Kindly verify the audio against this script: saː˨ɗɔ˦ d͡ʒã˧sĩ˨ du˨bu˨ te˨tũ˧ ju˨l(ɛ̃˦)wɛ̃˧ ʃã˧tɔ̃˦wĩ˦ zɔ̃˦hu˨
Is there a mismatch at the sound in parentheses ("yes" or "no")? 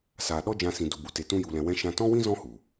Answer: yes